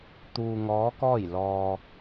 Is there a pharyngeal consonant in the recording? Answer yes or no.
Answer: no